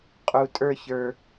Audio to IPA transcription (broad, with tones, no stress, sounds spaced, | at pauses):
qʼ u˨ tʼ ə˞˦˨ ç ə˞˨